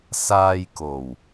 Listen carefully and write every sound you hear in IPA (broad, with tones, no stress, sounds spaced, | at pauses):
s aː˧ j k o˨˩ w